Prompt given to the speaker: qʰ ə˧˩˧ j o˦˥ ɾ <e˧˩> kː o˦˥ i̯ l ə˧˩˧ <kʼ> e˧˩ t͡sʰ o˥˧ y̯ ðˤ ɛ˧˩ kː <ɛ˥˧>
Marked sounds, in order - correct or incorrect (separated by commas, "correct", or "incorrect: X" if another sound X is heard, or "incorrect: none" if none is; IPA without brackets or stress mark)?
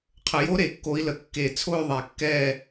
correct, incorrect: kː, correct